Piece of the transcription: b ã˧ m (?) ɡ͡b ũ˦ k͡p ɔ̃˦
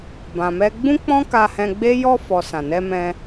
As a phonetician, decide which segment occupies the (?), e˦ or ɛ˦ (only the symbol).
ɛ˦